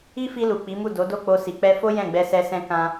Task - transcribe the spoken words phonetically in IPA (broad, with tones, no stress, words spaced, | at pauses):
i˦fi˧lu˨ k͡pi˨˦mu˦˨ do˨˦do˦˨k͡po˧ si˨k͡pɛ˧fo˦ jɛ̃˦˨ɡ͡bɛ˧sɛ˧sɛ̃˧ kã˧